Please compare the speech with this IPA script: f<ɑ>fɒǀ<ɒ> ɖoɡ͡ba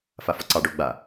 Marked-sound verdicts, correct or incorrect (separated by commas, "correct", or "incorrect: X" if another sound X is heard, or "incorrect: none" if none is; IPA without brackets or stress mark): incorrect: a, incorrect: ɑ